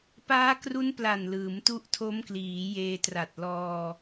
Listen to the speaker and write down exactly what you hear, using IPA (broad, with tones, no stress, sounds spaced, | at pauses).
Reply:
p aː˦˥ k r u˦˥ n p l a˨˩ n l ɯː˩˦ m t u˦˥ ʔ tʰ o˦˥ m k l iː˩˦ j eː˧ t r a˨˩ t̚ l ɔː˧